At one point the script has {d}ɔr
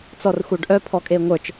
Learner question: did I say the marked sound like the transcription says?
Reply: no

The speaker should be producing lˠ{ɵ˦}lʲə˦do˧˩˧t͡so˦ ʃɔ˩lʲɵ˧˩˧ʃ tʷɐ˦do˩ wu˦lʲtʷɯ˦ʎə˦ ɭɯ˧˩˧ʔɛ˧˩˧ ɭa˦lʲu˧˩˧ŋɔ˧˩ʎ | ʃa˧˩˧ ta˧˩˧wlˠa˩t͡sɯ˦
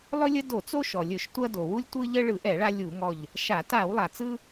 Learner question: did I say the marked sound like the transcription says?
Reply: yes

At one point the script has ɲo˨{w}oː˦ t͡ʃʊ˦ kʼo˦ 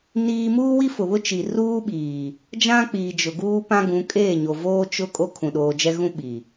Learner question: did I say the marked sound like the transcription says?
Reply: no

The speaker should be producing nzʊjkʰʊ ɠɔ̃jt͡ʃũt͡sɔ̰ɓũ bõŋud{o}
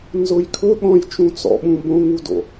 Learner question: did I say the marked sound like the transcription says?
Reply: no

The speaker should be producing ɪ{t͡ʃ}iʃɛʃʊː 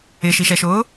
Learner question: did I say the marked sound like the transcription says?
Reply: no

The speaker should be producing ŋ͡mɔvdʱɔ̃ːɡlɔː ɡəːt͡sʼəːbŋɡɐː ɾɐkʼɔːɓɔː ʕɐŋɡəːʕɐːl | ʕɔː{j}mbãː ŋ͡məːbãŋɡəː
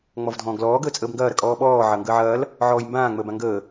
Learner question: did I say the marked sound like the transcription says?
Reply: yes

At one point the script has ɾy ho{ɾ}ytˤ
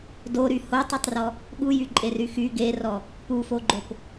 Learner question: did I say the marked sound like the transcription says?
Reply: no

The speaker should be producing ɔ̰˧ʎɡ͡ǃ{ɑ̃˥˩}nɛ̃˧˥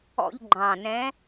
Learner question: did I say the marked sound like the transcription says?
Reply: no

